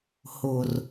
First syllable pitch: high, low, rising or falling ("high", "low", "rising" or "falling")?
low